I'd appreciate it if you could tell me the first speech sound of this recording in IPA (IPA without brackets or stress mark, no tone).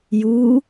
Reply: j